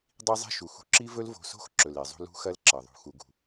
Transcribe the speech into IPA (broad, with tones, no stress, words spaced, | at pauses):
dˤi˦zˤe̤˦ ʃu˨xṳ˧ ǁi˦vɵ˦l vo̤˧so̤˦x ǁɵ˨le˨zˤṳ˧ lṳ˦xɐ˦lǁɐ˨ðˤṳ˨ xu˨ɡṳ˨